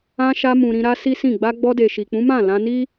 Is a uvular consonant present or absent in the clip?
absent